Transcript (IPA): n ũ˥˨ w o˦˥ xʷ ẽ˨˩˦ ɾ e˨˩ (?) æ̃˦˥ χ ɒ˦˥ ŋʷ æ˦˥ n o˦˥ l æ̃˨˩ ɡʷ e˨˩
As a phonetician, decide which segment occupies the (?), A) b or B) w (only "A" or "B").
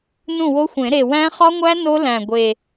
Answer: B